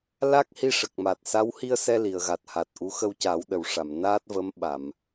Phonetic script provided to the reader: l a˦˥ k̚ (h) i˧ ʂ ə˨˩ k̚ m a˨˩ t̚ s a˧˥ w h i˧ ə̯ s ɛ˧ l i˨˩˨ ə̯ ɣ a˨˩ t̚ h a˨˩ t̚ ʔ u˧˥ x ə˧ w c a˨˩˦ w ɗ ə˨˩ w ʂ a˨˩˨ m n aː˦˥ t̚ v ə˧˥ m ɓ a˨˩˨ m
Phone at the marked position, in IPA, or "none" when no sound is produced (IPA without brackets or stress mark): h